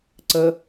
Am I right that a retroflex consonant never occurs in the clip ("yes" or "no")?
yes